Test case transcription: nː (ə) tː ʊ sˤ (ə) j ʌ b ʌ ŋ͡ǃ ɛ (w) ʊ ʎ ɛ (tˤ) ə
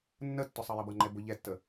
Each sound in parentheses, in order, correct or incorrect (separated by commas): correct, incorrect, incorrect, incorrect